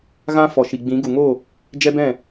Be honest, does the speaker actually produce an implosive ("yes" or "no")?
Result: no